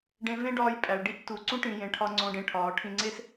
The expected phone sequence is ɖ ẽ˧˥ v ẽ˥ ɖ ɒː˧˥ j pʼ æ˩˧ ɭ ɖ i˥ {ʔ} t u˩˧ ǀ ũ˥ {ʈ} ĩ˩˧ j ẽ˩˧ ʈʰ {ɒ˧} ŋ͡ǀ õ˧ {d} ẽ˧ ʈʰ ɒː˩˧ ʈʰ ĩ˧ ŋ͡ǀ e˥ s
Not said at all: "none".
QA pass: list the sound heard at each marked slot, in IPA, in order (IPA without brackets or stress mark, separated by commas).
ʔ, ʈ, ɒ˧, ɖ